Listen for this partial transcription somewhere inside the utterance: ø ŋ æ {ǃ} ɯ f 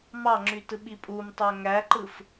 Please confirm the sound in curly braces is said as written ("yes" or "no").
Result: yes